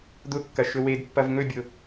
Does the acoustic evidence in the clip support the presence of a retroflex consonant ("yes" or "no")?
no